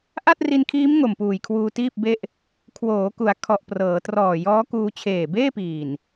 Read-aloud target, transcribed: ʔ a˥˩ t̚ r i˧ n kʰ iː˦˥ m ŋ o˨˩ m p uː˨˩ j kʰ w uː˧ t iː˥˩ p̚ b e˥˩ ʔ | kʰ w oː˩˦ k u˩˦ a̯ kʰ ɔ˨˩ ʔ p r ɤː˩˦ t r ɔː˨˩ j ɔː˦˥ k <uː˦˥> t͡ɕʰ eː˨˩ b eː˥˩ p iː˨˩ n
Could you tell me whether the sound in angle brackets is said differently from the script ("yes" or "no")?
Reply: yes